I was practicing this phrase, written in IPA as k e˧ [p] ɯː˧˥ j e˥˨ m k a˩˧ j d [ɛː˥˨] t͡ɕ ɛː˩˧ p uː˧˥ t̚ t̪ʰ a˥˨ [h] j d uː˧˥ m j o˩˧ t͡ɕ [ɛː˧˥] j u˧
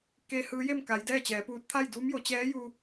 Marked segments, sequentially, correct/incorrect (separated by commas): incorrect, correct, incorrect, correct